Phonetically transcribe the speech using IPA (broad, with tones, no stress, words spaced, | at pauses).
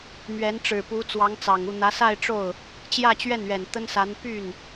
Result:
mɥɛ˧˥nʈ͡ʂɻ̩˨˩pu˧˥ t͡swɑ˧˥ŋt͡sɑ˨˩ŋu˥˩ n̪ä˧˥sa˥˧ɪ̯ʈ͡ʂo˥˩ʊ̯ | t͡ɕjä˥˧t͡ɕɥɛ˥˩nɥɛ˨˩n t̪ə˥nsa˧˥n py˥˩n